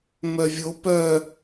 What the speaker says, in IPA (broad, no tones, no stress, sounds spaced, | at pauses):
m œ vʲ o p œ